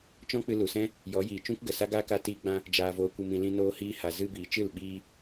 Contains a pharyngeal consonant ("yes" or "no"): no